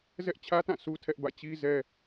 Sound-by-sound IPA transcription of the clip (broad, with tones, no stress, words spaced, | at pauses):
zɛ˦ʔt͡ɕʰä˦tã˦˨ sʰu˦tʰɛ˦ʔbä̰˦˨ t͡ɕi˦zɛ˦